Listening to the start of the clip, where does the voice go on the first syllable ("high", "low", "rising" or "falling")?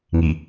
low